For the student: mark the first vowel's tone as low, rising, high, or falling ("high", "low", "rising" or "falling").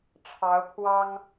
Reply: rising